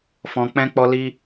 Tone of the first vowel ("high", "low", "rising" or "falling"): low